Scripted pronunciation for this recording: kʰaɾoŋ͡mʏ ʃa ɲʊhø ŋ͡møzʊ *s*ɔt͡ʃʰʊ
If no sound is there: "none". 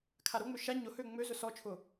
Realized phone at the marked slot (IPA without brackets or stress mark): s